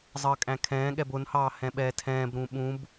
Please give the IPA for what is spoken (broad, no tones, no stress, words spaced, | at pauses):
zˤəːkʼæ̃kʰɛ̃ːɠɛb ʊnhɑː hɛ̃ɓɛːtʰɛ̃ːbɾũ ɓũb